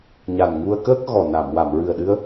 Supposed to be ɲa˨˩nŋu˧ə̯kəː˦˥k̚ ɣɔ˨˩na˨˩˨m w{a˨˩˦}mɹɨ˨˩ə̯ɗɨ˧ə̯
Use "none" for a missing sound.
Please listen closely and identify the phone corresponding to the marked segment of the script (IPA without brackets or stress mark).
a˨˩˨